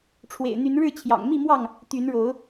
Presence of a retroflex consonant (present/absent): present